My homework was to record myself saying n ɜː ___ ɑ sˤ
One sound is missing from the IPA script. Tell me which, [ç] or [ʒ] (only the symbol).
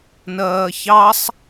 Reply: ç